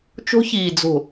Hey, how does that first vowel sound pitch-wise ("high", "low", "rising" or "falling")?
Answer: high